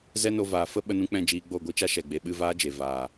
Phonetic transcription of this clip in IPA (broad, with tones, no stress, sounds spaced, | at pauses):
z ɛ˦ n o˧ v aː˨ f ə˦ ɓ ə˧ n ũ˧ k͡p ɛ̃˦˨ d͡ʒ iː˧ ɡ͡b o˦˨ ɡʷ i˦ t͡ʃ a˦ ʃ ɛ˨ ɡ͡b e˨ ɓ ɨ˦˨ v aː˦ d͡ʒ e˨ v aː˨